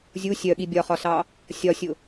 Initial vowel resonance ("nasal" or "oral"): oral